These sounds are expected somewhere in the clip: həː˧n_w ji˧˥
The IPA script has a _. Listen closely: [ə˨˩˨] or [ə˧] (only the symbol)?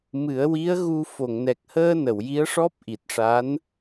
ə˨˩˨